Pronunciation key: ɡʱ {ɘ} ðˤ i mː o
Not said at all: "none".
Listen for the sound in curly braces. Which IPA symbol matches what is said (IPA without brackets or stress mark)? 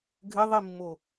ɘ